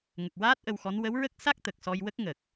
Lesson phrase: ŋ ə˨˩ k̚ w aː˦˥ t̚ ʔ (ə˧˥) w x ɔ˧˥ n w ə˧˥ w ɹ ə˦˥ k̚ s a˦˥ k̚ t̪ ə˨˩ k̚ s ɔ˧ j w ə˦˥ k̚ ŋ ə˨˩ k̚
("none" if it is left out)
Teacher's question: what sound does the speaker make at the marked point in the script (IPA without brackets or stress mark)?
ə˧